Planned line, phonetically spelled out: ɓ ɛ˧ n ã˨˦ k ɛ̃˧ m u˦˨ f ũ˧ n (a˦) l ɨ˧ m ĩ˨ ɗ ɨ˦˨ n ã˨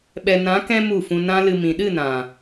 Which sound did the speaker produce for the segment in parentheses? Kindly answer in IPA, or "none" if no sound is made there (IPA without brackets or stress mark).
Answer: ã˦